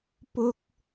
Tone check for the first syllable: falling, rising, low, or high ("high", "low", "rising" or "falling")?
high